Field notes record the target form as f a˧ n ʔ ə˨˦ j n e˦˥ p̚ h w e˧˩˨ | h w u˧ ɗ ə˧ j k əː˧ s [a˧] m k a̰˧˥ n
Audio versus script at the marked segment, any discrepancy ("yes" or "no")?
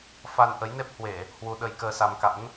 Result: no